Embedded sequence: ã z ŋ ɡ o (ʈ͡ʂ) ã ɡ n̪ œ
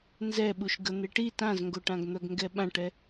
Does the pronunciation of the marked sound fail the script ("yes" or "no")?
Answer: yes